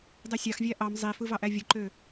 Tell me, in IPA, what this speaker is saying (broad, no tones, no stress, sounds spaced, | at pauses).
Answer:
dˤ e sʲ ɑ x vʲ æ ʔ ɑ m zˤ i f ɯ v ɑ ʔ æ vʲ ɯ ǃ ø